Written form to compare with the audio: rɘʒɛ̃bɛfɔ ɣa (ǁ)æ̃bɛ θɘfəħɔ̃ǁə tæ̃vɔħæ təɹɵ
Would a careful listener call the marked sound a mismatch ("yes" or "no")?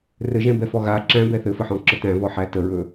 no